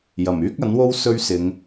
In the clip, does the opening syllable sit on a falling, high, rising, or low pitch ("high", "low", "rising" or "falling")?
low